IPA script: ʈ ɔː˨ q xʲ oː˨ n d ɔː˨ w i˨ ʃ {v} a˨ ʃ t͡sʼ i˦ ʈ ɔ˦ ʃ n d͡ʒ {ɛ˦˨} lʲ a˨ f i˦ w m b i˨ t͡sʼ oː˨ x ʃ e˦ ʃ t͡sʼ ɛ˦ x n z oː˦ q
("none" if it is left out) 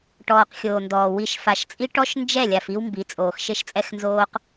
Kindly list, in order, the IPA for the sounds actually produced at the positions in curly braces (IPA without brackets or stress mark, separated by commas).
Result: f, ɛ˦˨